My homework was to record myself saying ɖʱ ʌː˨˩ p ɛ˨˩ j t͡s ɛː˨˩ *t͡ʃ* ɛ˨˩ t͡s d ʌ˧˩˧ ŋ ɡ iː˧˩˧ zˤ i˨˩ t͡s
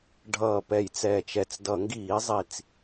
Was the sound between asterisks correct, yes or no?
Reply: yes